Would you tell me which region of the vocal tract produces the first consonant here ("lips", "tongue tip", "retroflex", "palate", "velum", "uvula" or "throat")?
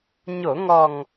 palate